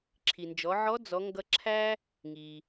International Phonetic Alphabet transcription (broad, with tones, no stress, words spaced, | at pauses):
ǁʰi˩nd͡ʒɔ˩˧ʕɔ˧˥ d͡zɔ˩˧ŋɡʌ˧ǁʰæ˥ | ŋi˩